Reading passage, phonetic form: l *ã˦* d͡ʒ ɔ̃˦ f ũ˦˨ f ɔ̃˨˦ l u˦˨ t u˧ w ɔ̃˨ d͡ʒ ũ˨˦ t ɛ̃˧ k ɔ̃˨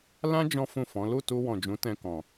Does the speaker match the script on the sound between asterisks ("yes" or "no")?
yes